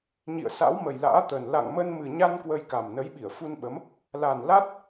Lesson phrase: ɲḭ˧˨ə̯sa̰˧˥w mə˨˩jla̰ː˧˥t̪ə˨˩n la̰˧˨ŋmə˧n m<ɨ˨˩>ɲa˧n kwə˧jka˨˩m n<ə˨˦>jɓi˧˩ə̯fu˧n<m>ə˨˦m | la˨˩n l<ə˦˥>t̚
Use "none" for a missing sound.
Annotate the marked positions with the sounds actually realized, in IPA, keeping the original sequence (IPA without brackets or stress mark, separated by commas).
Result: ɨ˨˩, ə˨˦, ɓ, a˦˥